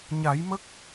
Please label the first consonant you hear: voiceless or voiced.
voiced